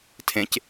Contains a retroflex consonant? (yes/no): no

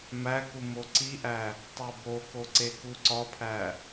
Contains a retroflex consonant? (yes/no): no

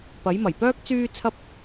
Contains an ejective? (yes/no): no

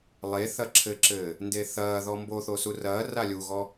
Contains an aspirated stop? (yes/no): yes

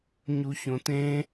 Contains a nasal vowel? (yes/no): yes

